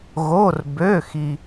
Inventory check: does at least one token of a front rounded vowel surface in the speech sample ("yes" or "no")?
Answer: yes